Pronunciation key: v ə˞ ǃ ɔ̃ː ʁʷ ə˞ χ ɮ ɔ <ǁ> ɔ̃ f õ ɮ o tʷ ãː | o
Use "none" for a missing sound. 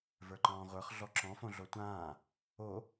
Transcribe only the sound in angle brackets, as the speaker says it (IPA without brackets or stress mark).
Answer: ǁ